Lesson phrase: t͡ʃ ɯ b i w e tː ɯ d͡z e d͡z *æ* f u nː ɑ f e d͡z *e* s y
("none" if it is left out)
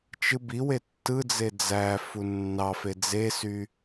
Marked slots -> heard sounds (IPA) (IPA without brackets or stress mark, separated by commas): æ, e